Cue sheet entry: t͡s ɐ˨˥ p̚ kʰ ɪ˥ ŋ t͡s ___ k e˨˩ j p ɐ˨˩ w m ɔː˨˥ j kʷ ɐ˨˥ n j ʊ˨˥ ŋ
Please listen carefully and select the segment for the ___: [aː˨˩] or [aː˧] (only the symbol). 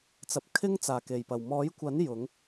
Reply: aː˨˩